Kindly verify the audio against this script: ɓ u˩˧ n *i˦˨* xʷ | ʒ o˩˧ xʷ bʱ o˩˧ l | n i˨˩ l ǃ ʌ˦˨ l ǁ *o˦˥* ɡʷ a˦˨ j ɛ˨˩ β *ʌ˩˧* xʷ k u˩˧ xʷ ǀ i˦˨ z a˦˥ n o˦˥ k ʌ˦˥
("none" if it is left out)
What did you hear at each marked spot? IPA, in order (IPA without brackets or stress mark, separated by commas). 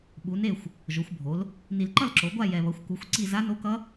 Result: e˦˨, o˩˧, ʌ˩˧